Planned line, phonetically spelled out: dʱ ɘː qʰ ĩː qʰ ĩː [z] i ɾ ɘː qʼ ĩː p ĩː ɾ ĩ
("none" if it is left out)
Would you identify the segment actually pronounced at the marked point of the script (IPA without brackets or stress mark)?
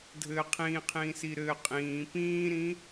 s